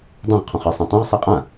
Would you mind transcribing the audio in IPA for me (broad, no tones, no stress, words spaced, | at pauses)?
dˤõʁqʰɔ̃χə˞ sˤẽtˤõʁ sˤeqʼã